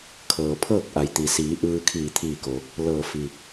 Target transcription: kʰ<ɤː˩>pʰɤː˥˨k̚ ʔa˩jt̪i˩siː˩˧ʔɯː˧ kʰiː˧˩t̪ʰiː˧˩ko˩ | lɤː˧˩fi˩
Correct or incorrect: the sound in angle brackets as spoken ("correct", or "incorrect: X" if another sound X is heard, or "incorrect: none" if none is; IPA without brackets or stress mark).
correct